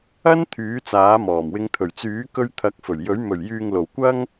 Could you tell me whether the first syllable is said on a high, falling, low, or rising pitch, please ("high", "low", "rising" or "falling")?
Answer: high